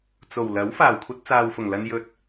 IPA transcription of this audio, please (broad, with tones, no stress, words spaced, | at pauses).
t͡so˨˩w lɐ˨˥w faː˨˩wkʷʰɐ˧t̚t͡saː˨wfʊ˨˩ŋ lɐ˧njɵ˧t̚